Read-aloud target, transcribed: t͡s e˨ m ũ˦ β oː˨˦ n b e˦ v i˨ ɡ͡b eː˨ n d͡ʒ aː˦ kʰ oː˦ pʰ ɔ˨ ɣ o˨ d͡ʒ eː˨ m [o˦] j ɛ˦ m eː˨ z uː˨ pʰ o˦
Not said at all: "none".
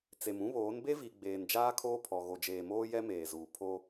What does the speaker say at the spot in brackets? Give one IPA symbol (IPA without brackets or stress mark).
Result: oː˦